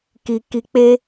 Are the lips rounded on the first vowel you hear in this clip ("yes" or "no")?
no